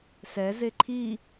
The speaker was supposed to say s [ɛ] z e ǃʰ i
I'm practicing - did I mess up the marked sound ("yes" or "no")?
no